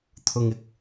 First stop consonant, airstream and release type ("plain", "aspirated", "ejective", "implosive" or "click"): aspirated